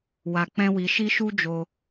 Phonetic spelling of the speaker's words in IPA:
w a˧ k͡p ɛ̃˦ w i˧ ʃ i˦ ʃ u˦ d͡ʒ o˧

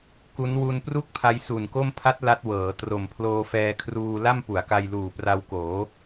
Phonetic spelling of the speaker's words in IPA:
k u˦˥ n w u˧ n p r u˥˩ k̚ pʰ a˦˥ j s u˨˩ n k o˥˩ m pʰ a˦˥ t̚ l a˦˥ t̚ w ɤː˩˦ t r o˨˩ m pʰ l oː˧ f ɛː˧ kʰ r uː˧ l a˥˩ m p u˩˦ a̯ k a˧ j l uː˨˩ p r a˧ w k oː˩˦

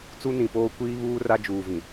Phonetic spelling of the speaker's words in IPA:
t͡s u˦ n ĩ˨ p oː˦ kʷ iː˦ β uː˦ r a˦ d͡ʒ uː˨ v ĩ˨

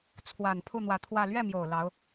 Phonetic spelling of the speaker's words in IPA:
t͡sʰ w a˨˩ n pʰ u˥˩ n̪ w ä˧˥ t̪ʰ w ä˥˧ l ɥ ɛ˥˩ m j o˨˩ ʊ̯ l ɑ˧˥ ʊ̯

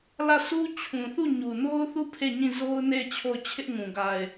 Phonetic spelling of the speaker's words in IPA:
l ä˦˨ s u˦ t͡ɕʰ ũ˨ θ u˦˨ ɲ u˨ n o˦ ʊ̯ θ u˦˨ pʰ e˦˨ ɲ ĩ˦˨ z o˦ ʊ̯ n e˦˨ ɪ̯ t͡ɕʰ o˦˨ ʊ̯ t͡ɕʰ ɪ˦ ʔ ŋ ũ˨ ɡ a˨ ɪ̯

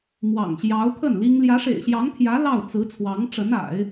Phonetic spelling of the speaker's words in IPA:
m w ɑ̰˨˩ ŋ ɕ j ɑ˧˥ ʊ̯ pʰ ə˥˩ n l i˥ ŋ l j ä˧˥ ʂ ḛ˨˩ ɪ̯ ɕ j ɑ˧˥ ŋ pʰ j ä˧˥ l ɑ˥˩ ʊ̯ t͡s ɹ̩˧˥ t͡sʰ w ɑ˧˥ ŋ ʈ͡ʂ ə˧˥ n a̰˨˩˦ ɪ̯

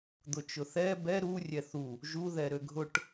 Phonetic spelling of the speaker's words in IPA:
d̪ ʊ t͡ʃ ʊ θ ɛ b ɛ ɾ u rʲ ɛ θ u | ʒ u ð ɛ ɾ ø ɡʱ ʊ ʈ

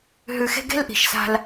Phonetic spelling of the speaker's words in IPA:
ɦ ʉ˧ x e̤˦ ɡ e̤˦ l ʔ i̤˨ ʃ s a̤˧ l

